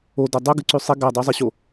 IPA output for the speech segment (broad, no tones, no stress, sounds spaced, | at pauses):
o d ɐ dˤ u ɡ ɨ ǀ ʉ sˤ i ɡ a dˤ u zˤ i ɕ o